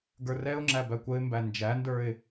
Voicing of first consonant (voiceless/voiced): voiced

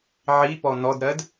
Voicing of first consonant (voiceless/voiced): voiced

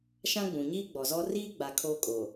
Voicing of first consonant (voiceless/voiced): voiceless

